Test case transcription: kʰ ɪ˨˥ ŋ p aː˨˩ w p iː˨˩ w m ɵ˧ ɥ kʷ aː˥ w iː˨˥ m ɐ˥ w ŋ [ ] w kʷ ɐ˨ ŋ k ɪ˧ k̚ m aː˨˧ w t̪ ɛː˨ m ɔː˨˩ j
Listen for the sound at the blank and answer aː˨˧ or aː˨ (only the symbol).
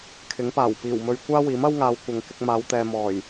aː˨˧